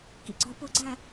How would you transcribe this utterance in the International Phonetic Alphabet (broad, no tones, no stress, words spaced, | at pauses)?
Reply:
kḭɡ͡ǀɒ pʊɡ͡ǀæ